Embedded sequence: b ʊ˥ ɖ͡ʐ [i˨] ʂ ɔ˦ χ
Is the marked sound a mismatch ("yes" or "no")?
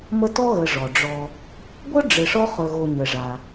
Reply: yes